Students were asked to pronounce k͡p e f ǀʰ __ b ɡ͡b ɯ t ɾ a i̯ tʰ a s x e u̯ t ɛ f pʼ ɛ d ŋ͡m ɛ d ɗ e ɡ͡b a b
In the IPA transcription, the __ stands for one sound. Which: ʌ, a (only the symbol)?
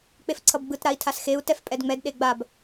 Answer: ʌ